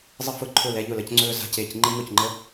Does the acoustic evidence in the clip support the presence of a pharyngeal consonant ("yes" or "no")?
no